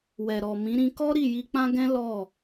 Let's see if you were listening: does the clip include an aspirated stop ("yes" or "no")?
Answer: no